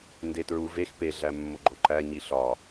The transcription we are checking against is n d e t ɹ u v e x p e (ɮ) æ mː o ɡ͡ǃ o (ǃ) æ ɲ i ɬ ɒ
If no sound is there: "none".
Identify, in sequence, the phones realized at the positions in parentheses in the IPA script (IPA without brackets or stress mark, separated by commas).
ɮ, ǃ